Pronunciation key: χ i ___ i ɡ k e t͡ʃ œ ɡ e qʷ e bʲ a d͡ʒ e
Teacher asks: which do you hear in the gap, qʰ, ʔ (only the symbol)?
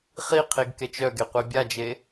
qʰ